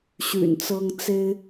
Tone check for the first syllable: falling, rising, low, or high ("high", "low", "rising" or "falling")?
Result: low